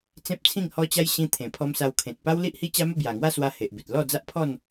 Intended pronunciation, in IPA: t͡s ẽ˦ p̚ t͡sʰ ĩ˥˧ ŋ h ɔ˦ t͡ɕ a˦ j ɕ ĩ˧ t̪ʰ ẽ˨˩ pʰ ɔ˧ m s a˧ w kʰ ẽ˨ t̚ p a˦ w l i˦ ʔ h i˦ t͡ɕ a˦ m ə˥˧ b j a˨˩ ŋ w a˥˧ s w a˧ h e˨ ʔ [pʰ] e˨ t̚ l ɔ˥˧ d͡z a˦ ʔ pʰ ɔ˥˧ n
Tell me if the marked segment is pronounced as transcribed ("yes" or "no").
no